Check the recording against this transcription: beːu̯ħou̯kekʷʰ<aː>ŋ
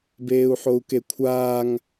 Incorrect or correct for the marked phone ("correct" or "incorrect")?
correct